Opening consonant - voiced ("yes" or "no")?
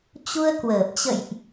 no